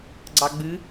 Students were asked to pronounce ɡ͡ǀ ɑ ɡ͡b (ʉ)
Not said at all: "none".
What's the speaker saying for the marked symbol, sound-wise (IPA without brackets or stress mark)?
ʉ